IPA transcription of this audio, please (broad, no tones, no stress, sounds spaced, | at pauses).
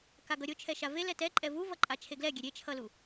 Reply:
k a ɡ ʌ ɾʲ o t͡ʃʰ ɛ ʃ a v e l ɛ t ɛ ǃʼ ɛ v u v ʌ ǃʼ a t͡ʃʰ e ɡ l ɛ ɡʲ ɛ ɾʲ e t͡ʃʰ ʌ l u